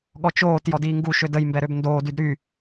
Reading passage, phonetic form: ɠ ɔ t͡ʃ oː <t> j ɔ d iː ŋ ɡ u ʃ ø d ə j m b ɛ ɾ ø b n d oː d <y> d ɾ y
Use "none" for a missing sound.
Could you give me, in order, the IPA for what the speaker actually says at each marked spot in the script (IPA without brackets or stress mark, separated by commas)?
t, y